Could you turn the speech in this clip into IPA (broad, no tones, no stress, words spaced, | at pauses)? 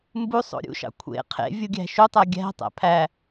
mbusˤo̰ ɾʲṵʃɑ̰ kʷʰḛ qʰḛ vʲuɡʲæ̤ʃutˤæ ɡʲæ̤tˤæ̰ pʰæ